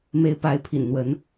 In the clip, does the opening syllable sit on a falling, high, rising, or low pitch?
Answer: rising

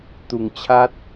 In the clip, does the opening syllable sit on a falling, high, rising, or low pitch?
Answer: low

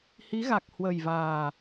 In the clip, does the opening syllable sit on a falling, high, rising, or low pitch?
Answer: rising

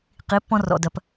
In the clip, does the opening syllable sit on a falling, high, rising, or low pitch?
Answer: rising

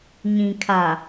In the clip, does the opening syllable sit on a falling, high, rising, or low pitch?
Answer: low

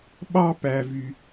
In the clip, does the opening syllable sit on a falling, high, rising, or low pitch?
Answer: high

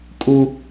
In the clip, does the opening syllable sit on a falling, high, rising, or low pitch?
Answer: high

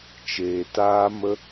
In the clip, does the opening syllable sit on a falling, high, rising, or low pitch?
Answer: low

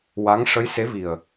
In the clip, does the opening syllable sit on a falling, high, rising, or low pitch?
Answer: rising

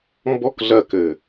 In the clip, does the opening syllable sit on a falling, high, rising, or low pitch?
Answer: high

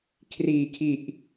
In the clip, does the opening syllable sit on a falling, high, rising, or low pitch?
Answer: low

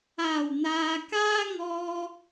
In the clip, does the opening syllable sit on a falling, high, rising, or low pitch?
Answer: low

